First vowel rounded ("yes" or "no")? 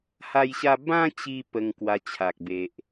no